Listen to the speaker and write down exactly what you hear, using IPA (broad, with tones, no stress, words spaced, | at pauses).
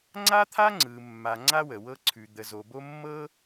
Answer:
ŋ͡ǀa˥t̪ʰa˥ ŋ͡ǀɯ˨mːa˨ ŋ͡ǀa˥wə˩wɤ˦ ǀʰʉ˨ d̪ə˨zo˨ bo˦mːɤ˥